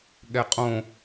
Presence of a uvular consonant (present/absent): present